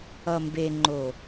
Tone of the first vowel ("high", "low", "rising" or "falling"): low